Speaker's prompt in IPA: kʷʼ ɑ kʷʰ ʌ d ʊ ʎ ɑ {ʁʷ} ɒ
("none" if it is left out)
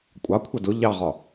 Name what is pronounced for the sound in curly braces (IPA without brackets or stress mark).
ʁ